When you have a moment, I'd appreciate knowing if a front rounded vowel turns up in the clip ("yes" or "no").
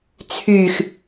yes